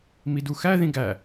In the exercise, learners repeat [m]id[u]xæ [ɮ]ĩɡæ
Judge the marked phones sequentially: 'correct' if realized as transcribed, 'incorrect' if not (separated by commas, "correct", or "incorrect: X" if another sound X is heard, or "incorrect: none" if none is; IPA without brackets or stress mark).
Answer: correct, correct, incorrect: ð